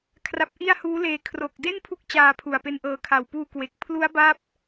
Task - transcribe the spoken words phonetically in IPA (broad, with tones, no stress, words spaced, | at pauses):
kʰra˦˥p̚ ʔi˥˩a̯ huː˦˥leː˧ kʰro˨˩k̚de˥˩n pʰu˦˥k̚ t͡ɕaː˧pʰu˨˩a̯pe˧nʔɤː˧ kʰa˨˩wpuː˧kwe˨˩k̚ pʰlu˦˥a̯ba˦˥p̚